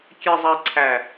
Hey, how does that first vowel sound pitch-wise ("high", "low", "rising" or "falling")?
low